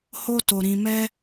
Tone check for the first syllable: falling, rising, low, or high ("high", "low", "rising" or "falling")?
high